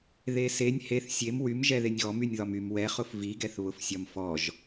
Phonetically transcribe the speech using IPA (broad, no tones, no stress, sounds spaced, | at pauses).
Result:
ð e s e nʲ h e θ sʲ e m w y m ʒ ɛ ð e nʲ ɣ ɔ m y nʲ ð ɒ m y m w ɛ χ ʊ f v i ɡ ɛ θ β ʊ f sʲ ɒ m f ɔ ʒ